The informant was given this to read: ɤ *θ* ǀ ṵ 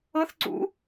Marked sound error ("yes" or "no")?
no